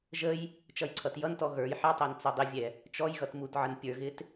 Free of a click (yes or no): no